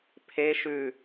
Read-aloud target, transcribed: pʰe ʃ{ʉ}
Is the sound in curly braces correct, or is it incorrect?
correct